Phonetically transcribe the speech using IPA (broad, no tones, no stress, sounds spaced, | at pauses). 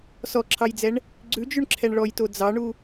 s ɔ ǁʰ ɑ j d͡z ɛ ɳ | ɡ͡ǀ ʉ d͡ʒ ʉ ɳ ǁʰ ɛ ɳ ɭ ɔ j t o d͡z ɑ ɳ u